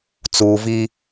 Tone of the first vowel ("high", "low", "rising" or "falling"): low